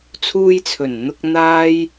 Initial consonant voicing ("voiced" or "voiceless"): voiceless